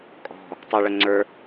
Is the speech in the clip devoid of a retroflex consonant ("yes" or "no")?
no